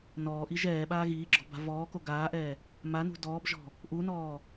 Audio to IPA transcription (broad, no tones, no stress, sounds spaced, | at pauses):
n ɔː ʔ i ʒ ɛː ɓ aː ɣ iː ɡ͡ǁ ɔ̤ b a̤ v ɔː k o ɡ aː ʔ ɛː | m a n ṳ d ɔː b ʒ ɔ̤ | ʔ u n ɔː